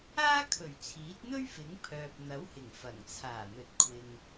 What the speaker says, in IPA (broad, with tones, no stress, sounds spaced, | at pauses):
aː˥ kʰ ɵ˨˩ ɥ t͡sʰ iː˨˥ t̚ n̪ ɵ˥ ɥ f ɪ˨˥ ŋ pʰ œː˨ p̚ n̪ ɐ˨˥ w h ɪ˨˩ ŋ f ɐ˨˩ ŋ t͡sʰ aː˨˩ n̪ ɵ˨ t̚ kʷʰ ɪ˨ ŋ